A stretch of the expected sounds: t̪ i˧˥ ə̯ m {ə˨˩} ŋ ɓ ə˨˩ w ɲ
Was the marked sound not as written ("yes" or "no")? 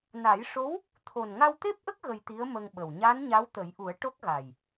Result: yes